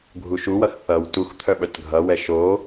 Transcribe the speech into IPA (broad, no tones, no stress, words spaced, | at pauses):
ɡʱuʃuwʌx θʌw tux t̪ʰœɓœtɡʱʌwɛ ʃo